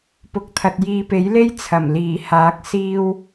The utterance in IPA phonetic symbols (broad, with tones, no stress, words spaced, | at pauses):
pʊ˨˥k̚t̪ʰɐ˨t̚ jiː˨pe˨˥jle˥j t͡sʰɐ˨˩m liː˨˩haː˨˥k̚ siː˥w